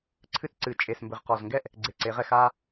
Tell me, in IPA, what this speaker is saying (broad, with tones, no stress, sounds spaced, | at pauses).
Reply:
ǀʰ ɨ˦ t͡s ǀ ɨ˩˧ t͡ʃʼ e˨˩ s m b ɘ˨˩ ʁ q ɔ˨˩ z ŋ ɡ ɛ˥˨ ʔ | ɡ͡ǀ e˨˩ ǀ e˩˧ ʁ ɛ˥˨ x a˦